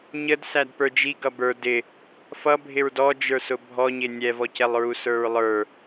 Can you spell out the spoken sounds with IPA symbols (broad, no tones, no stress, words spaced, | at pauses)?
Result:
ɲəd sædpə˞d͡ʒi ɡʌbə˞ dɪ | fʌbʱɪɹ dɔd͡ʒə˞sʊ bʱɔɲɪ nʲɛvɔcɛlˠɹu sə˞ɹlˠə˞